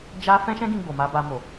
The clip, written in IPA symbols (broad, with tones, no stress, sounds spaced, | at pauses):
d͡ʒ a˦ f ɛ̃˦ ʃ ɛ̃˦ ɡ ĩ˧ ɡ͡b o˨ m a˧ b a˧ m o˨